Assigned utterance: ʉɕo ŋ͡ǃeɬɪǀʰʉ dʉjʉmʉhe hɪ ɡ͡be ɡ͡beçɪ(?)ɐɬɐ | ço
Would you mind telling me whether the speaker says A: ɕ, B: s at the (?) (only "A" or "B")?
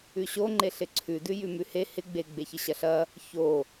A